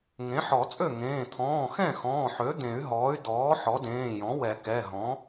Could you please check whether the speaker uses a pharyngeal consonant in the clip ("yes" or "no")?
yes